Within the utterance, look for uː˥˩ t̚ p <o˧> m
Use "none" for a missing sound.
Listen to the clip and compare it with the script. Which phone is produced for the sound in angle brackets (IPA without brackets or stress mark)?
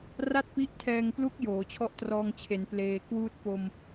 o˧